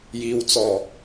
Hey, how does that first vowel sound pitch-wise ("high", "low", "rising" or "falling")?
low